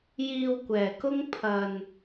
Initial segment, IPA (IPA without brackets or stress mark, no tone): j